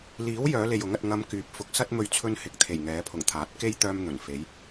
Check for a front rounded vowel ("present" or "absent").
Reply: present